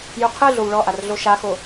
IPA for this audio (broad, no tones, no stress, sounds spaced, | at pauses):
j u qʰ ɯ ɮ o w ɭ ɔ ʔ a r ɮ o ʃ a x o